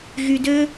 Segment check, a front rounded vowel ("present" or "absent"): present